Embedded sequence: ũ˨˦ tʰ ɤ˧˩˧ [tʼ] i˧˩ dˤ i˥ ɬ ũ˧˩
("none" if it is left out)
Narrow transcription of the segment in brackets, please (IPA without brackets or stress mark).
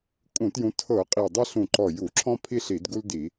qʼ